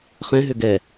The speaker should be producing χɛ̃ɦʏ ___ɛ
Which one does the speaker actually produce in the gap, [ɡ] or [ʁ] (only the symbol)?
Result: ɡ